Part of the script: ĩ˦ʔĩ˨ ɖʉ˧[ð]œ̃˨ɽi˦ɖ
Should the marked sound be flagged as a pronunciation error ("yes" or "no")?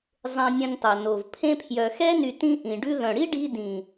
no